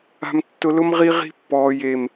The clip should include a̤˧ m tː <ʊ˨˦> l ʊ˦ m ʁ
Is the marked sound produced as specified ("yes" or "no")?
no